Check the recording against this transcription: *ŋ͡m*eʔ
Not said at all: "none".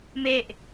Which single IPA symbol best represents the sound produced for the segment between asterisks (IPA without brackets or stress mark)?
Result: m